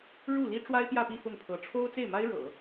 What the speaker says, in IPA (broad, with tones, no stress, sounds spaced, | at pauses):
ɻ u˥˩ l i˥ ʈ͡ʂ w a˥ ɪ̯ p j ä˥˧ p i˥˧ f ʊ˥˩ ŋ pʰ ɤ˧˥ ʈ͡ʂʰ o˥ ʊ̯ t͡s e˥˩ ɪ̯ m a˥ ɪ̯ ɻ ɤ̰˨˩˦